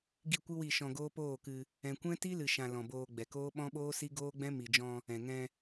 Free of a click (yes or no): yes